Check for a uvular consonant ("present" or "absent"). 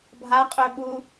present